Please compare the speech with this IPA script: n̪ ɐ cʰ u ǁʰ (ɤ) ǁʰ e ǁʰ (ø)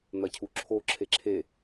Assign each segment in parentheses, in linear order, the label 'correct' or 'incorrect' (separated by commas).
incorrect, incorrect